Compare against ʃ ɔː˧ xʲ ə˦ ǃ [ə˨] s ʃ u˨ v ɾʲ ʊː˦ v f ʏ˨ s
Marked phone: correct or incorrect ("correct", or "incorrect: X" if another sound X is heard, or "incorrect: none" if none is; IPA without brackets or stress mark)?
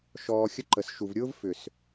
correct